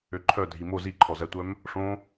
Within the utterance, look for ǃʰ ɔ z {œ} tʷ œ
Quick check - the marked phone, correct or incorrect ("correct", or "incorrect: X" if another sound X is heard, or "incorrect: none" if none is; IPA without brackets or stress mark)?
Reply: incorrect: æ